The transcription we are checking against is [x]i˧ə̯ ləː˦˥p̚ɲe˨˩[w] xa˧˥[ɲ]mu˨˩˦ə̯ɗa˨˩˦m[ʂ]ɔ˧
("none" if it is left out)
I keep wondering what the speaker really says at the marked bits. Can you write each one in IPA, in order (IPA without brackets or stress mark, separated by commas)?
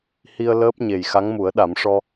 h, j, ŋ, ʂ